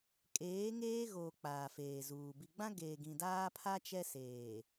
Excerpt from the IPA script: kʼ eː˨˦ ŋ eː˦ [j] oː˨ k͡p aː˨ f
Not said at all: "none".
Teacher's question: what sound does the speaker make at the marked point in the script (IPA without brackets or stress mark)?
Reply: ɣ